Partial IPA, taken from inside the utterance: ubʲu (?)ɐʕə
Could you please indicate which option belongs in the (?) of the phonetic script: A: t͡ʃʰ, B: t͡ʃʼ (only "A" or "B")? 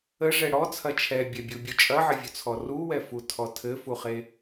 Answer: B